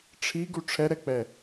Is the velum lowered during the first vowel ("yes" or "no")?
no